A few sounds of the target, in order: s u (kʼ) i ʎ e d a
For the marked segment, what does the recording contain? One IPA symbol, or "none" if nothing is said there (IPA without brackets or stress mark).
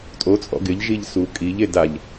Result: kʼ